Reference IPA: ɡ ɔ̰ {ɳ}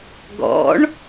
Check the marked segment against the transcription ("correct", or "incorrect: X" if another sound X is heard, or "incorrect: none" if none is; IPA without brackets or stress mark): correct